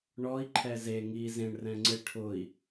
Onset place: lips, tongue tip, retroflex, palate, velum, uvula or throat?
retroflex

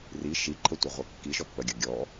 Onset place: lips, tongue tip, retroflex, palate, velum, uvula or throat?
tongue tip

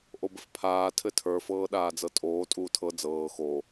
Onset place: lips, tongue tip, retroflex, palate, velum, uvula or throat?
throat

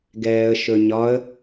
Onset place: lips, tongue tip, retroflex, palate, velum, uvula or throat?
velum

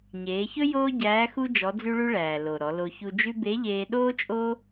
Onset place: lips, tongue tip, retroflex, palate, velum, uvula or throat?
palate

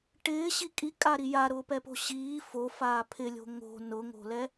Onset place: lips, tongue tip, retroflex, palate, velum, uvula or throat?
retroflex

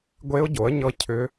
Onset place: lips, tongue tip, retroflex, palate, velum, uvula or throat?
velum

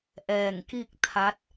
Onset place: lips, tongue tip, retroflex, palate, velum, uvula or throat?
throat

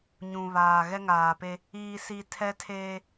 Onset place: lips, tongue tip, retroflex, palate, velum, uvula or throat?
palate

